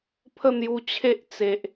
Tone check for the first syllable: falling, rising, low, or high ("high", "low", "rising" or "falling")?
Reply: falling